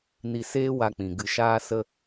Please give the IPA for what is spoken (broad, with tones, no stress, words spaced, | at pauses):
ni˧seː˦wa˧k͡pĩ˨ ɡɨ˧ʃaː˦sə˦